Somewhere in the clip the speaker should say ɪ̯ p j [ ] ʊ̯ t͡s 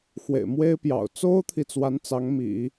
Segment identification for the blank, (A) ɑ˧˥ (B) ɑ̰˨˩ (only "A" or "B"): B